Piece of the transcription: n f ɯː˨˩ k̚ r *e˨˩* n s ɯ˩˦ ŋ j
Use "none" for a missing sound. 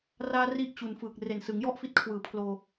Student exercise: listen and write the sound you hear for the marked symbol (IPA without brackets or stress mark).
e˨˩